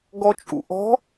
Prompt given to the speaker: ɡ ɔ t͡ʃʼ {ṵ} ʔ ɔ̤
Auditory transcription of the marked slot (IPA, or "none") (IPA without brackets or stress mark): ṵ